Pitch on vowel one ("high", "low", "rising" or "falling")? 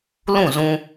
falling